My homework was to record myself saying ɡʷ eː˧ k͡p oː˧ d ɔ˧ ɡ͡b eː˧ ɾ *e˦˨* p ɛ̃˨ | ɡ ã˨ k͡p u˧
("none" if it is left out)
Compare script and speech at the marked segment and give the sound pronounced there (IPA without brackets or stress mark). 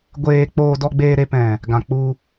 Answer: e˧